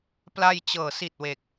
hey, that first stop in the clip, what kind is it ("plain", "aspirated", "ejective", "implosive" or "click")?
plain